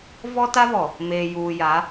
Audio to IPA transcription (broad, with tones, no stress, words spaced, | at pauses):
vɔ˦ta˦vɔ˨ | meː˨ juː˨ja˨˦